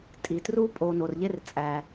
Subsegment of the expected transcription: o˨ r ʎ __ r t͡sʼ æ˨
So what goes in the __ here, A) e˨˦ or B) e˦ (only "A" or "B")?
B